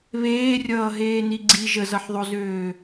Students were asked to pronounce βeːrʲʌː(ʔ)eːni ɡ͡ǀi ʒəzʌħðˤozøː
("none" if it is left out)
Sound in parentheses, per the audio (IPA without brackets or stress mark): ɦ